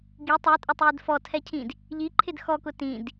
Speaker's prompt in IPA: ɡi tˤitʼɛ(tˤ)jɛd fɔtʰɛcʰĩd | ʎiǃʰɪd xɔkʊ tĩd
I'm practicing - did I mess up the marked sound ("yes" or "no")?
no